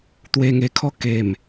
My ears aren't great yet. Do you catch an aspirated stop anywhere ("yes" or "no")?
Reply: yes